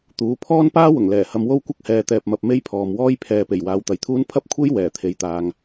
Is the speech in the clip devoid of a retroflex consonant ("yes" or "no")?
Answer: yes